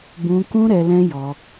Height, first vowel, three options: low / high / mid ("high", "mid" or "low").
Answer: high